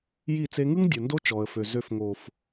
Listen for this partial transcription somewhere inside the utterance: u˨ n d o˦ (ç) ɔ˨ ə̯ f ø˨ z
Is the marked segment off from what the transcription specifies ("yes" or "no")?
yes